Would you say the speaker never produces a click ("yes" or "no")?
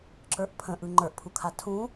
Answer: no